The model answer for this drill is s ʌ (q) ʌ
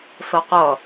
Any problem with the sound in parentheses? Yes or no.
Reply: no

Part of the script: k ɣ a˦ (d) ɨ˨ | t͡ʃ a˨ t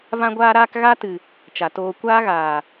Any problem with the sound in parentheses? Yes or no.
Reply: yes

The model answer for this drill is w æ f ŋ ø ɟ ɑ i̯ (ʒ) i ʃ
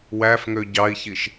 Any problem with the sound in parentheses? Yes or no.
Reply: yes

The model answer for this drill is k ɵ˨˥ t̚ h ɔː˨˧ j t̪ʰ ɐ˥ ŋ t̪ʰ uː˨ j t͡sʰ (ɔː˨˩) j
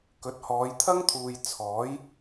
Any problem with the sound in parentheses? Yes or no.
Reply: yes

